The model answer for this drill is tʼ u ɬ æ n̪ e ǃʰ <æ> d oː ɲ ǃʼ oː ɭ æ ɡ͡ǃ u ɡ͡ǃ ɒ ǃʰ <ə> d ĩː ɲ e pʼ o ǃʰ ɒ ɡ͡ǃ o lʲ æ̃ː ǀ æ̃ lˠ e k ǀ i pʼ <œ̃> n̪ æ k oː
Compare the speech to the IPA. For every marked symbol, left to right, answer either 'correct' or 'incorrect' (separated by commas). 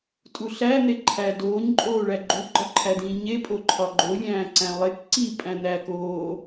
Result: correct, incorrect, incorrect